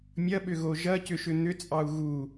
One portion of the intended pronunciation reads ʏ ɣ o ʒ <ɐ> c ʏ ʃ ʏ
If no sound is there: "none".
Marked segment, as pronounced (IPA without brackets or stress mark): ɐ